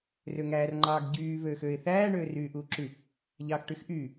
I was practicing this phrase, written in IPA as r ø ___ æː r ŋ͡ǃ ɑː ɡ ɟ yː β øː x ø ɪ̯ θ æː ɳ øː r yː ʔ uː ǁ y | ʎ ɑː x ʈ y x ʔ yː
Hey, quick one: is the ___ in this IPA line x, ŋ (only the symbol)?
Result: ŋ